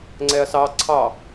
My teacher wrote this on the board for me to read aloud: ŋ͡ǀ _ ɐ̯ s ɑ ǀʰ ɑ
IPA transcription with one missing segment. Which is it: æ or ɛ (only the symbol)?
ɛ